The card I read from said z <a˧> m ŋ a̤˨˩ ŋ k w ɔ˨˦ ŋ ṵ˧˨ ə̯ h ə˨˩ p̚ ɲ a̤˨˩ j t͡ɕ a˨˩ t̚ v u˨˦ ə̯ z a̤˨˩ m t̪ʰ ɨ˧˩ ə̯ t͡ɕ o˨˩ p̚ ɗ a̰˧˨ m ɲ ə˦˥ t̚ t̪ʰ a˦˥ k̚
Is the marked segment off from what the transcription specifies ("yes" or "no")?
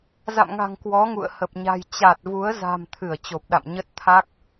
yes